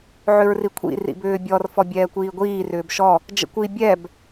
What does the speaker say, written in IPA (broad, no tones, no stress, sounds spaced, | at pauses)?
ʕ ʏ ɹ r i kʷʰ ḭ r ḭ b ʏː bʲ ɔ r f ɔ bʲ ɛː kʷ iː ɡʷ iː r ʏː b ʃ ɔ | d͡ʒ ə̰ kʷ i bʲ ɛ b